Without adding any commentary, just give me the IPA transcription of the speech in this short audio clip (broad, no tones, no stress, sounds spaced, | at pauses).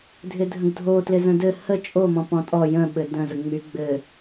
dʱ ɪ dʱ ə̃ ɡ dʱ o t l ɪ z ə̃ d ɘ h ə t͡ʃʼ o m ɔ̃ p ɔ̃ tʼ ɔ j ə̃ ɓ ɘ d ə̃ z ə ŋ͡m y ɡ͡b ɘ